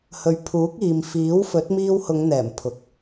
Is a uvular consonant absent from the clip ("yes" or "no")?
yes